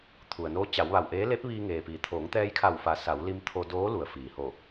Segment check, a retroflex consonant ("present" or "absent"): absent